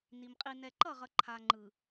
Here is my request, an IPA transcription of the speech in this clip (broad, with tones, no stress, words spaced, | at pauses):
ni˨m qʼi˨nɛ˨ǃʌ˦˨ʁʌ˨ ǃʰa˨ ŋ͡ǃɯ˨